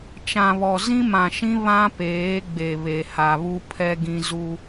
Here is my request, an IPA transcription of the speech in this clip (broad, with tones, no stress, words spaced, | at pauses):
t͡ʃã˨βɔ˨ zĩ˦mã˨ʃĩ˦ βã˦peː˨˦ ɡ͡be˨βe˨ha˨βu˦ pʰɛ˦ɡĩ˦ zu˦